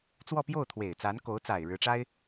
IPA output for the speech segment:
t͡swɔ˥˧pjo˥˩ʊ̯t̪ʰwe˨˩ɪ̯ t͡sa˧˥nko˧˥ʊ̯t͡sa˨˩ɪ̯ ɻɻ̩˧˥ʈ͡ʂa˥ɪ̯

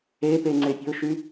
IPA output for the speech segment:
epe ŋ͡ǀepʲə̤ʊ̯ʃy

